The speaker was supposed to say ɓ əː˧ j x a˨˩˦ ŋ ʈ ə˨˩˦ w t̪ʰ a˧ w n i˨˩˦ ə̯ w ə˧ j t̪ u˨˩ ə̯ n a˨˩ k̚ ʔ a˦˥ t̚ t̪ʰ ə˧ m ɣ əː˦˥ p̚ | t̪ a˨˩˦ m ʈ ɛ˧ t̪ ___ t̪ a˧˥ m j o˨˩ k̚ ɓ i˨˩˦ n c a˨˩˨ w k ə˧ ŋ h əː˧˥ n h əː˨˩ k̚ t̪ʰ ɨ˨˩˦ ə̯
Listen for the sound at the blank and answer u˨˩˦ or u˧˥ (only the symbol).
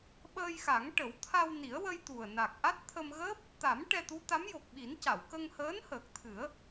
u˧˥